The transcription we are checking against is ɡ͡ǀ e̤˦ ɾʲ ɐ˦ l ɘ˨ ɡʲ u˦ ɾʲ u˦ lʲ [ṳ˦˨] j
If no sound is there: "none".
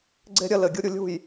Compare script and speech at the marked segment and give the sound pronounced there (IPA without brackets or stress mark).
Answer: ṳ˦˨